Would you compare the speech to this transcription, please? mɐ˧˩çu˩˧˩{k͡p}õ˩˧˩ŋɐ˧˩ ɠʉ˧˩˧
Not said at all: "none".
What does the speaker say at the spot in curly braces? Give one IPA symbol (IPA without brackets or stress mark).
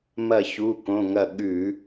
k